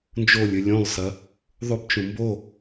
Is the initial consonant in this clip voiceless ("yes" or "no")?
no